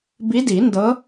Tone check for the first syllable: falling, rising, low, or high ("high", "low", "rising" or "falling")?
rising